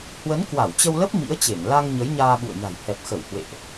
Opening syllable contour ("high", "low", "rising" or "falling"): rising